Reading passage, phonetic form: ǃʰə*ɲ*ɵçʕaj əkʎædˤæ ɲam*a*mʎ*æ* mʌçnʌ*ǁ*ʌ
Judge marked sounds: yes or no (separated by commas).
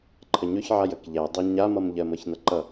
yes, no, no, no